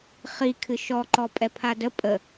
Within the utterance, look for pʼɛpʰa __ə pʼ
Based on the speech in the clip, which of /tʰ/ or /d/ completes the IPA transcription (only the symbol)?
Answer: d